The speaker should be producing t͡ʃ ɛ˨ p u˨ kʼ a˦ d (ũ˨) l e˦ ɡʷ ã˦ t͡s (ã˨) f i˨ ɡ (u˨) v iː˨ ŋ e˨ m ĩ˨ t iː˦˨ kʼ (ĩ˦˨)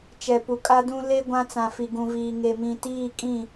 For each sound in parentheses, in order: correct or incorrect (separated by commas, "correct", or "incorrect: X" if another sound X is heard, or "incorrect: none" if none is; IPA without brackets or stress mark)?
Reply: incorrect: ũ˦, correct, incorrect: ũ˨, correct